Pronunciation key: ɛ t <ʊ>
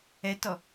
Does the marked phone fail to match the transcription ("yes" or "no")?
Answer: yes